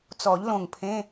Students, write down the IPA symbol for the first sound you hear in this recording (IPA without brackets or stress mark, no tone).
t͡s